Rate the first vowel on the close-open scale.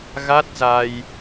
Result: open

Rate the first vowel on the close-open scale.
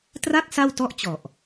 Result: open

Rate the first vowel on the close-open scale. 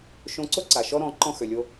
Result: mid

